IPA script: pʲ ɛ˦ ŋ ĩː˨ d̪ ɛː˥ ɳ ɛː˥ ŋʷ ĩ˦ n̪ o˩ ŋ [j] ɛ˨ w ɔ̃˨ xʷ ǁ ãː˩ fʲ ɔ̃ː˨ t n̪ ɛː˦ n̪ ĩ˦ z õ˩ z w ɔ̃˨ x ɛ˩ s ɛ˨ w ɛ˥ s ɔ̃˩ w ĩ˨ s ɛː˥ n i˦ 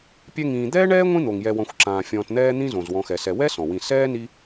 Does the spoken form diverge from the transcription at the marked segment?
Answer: no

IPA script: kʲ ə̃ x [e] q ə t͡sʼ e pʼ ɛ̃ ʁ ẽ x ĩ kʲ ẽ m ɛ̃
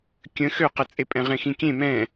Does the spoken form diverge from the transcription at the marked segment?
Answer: yes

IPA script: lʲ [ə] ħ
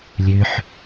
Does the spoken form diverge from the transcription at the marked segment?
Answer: yes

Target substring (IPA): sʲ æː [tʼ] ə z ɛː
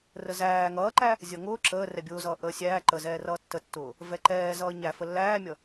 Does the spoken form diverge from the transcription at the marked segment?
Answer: yes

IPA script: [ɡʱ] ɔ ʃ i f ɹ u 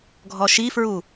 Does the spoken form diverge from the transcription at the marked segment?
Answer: no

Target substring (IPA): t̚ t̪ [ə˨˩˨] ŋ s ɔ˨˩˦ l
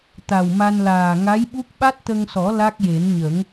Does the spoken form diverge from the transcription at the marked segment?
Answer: yes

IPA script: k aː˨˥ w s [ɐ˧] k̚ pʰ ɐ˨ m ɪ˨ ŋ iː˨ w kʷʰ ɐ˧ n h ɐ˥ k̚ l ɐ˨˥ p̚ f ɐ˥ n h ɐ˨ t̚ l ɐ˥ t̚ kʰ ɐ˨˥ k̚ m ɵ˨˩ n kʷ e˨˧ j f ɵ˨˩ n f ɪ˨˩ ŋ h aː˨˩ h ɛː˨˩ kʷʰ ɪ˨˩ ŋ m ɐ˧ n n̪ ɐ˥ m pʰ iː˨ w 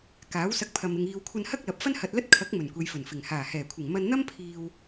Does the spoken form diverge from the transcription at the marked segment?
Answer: no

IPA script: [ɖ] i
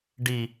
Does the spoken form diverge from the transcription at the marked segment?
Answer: no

